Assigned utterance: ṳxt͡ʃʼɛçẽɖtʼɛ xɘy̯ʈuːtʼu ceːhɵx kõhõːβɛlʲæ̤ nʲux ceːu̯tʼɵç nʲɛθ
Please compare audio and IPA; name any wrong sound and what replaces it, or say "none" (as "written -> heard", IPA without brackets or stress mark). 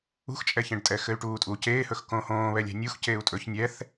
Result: none